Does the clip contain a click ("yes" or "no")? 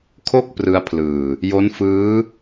no